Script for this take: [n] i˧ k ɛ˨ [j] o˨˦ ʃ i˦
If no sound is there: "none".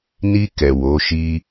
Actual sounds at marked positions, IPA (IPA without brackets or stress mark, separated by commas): n, w